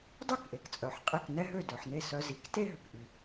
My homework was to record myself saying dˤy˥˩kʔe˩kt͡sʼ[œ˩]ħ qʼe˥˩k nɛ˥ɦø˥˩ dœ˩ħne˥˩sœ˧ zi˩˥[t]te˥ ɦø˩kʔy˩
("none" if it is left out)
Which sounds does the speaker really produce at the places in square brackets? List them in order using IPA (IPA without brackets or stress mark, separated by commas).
œ˩, k